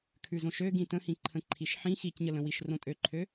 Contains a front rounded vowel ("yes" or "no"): yes